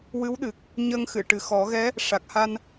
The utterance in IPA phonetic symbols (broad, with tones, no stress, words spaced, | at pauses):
wɨ˧˥wɗɨ˨˩k̚ | ɲəː˧ŋxɨ˨˩˨ ʈɨ˨˩ xɔ˨˩˦ɣɛ˧˥ | ʂa˨˩k̚ha˧n